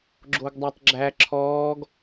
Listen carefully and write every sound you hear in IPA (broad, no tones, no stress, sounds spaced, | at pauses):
ɡ͡ǁ o ɡ dˤ æ tˤ ɡ͡ǁ æ ǁʰ ɔː ɡ